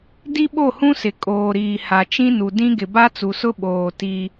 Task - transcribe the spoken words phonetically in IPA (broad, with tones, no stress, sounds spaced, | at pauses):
d i˦ ɓ o˦˨ h ũ˦ s ɪ˨ kʼ oː˨ ɾ iː˨ h a˨ t͡ʃ ĩ˦ n u˨ d ĩ˦ ɡ ɪ˨ b a˦ t͡s u˨ s ʊ˦ ɓ oː˨ t i˦